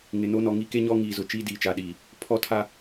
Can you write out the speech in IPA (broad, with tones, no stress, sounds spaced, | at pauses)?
ŋ ɪ˨ n o˦ n ɔ˨ ŋ i˦ k e˦ ɲ ɔ˦ ŋ iː˨ z ʊ˨ t͡ʃ iː˦ d iː˨ t͡ʃ a˨ ɗ iː˨ | pʰ ɔ˦ tʰ a˦